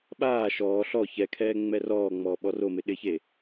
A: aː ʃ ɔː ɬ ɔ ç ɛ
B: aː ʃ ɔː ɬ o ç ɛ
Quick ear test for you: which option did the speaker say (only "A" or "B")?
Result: A